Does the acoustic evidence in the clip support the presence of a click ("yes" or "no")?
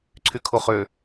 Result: yes